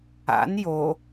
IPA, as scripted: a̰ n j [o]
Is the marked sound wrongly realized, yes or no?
no